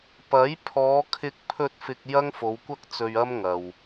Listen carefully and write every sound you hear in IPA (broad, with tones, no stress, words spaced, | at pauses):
pɐ˨˥j pʰɔː˨˧kʰɪ˧k̚pʰɵ˧t̚ fɪ˨k̚ jɐ˥ŋfo˨˧wkʷɐ˥k̚t͡sɵ˧ɥ ɐ˥mŋɐ˨w